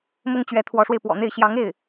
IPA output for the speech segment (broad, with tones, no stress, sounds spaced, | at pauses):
m ʊ˥ ŋ t͡ɕ ɥ ɛ˧˥ t̪ʰ w ɔ˧˥ ʂ w e˧ ɪ̯ p w ɔ̰˨˩ n̪ e˥˩ ɪ̯ ɕ j ɑ˧˥ ŋ e˥˩ ɪ̯